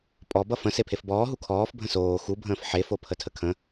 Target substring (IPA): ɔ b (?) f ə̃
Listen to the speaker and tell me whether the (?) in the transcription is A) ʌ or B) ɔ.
A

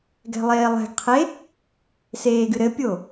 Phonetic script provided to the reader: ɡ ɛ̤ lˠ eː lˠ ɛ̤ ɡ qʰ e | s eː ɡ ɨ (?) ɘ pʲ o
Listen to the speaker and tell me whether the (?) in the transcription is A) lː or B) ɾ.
B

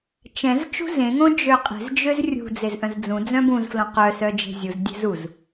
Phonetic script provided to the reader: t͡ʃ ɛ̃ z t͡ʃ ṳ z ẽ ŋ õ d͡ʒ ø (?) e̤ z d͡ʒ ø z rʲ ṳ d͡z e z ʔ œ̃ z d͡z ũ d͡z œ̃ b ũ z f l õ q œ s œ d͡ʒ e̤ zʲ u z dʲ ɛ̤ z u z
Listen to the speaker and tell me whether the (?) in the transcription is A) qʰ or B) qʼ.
B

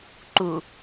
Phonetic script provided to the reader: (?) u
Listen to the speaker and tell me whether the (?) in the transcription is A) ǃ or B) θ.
A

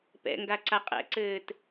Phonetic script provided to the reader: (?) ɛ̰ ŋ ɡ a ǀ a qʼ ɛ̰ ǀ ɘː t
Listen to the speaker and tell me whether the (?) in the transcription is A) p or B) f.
A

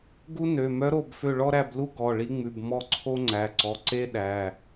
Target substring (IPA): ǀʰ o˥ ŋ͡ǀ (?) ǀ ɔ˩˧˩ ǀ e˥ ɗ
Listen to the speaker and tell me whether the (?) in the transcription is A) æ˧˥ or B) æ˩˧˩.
B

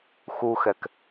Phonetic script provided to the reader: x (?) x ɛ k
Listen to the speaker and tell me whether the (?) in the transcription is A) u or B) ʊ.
A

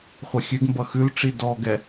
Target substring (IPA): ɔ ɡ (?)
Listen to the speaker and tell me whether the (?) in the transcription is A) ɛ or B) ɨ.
A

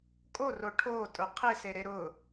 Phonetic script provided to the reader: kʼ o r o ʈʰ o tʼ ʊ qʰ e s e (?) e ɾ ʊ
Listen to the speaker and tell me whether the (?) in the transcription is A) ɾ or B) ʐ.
A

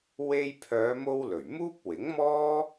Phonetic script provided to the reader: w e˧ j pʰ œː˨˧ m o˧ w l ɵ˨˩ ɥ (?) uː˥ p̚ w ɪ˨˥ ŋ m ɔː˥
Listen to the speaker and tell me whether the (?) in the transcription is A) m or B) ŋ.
A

